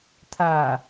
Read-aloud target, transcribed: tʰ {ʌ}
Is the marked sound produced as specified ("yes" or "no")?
no